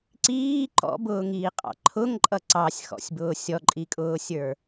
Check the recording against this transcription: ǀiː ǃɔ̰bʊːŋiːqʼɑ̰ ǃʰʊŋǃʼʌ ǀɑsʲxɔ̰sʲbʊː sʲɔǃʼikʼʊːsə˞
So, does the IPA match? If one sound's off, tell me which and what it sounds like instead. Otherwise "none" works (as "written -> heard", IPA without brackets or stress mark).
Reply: s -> sʲ